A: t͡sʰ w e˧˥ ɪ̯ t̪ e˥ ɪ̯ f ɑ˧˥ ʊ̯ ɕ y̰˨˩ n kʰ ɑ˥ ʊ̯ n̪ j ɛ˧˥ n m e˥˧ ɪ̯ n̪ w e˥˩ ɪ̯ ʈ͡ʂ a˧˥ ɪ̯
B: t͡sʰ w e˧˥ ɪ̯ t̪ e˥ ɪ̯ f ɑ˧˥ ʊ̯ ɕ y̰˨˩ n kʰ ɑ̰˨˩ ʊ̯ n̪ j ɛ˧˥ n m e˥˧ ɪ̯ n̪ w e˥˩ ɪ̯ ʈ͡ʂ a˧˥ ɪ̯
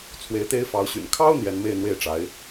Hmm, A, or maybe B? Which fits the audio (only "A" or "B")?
A